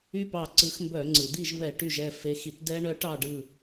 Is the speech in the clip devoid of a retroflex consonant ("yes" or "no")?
no